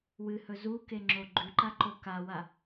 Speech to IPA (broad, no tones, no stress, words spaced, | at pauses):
wɨhɵ zukeŋ͡ǁo ɡ͡ǃʉǃaǃo kawa